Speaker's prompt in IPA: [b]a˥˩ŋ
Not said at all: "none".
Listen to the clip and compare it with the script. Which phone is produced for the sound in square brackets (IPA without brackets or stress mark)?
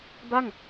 b